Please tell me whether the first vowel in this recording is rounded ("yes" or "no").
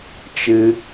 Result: no